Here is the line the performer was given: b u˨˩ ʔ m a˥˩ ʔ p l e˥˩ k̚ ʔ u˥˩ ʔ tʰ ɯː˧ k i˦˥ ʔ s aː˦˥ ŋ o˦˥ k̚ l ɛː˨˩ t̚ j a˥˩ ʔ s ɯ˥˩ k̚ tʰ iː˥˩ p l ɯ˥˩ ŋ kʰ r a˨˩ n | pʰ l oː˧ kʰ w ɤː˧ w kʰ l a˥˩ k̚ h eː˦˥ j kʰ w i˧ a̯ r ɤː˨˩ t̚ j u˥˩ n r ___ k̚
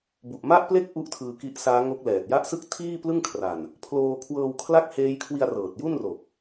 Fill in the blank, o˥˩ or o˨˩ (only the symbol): o˨˩